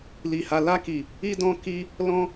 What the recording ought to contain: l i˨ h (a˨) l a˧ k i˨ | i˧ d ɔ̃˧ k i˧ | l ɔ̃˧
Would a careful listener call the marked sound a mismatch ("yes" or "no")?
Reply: no